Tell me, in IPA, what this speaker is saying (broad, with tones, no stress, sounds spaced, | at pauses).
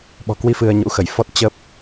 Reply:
ɓ ɔ̤˨˩ k w i˧ f ɨ˧ ə̯ ɲ ṵ˧˥ x ə˧˩ j f ɔ˦˥ t̚ t͡ɕ ə˦˥ p̚